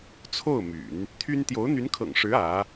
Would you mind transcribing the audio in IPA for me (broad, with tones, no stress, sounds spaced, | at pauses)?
t͡sʰ o˥˩ ʊ̯ m y̰˨˩˦ n | t̪ʰ y˥ n t̪ j o˧˥ ʊ̯ n̪ y˧˥ n kʰ ɤ̰˨˩ ŋ ʂ ɻ̩˧˥ ä˧˥